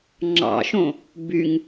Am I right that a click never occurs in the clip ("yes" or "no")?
no